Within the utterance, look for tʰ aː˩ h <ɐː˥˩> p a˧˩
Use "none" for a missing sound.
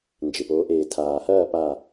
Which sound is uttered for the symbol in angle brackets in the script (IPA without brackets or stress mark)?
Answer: ɐː˥˩